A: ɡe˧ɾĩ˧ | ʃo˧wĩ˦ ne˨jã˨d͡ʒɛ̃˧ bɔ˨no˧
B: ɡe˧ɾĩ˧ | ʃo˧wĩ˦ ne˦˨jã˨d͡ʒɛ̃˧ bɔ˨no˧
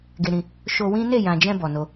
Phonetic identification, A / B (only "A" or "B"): B